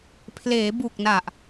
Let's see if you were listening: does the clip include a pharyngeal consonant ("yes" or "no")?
no